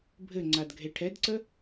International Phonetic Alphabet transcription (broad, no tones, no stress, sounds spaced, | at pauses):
bʱ ɘ ŋ͡ǀ a d ɡʱ e ʈʰ ɛ d ǀ ə